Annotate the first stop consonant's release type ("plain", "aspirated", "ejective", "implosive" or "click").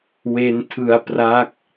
aspirated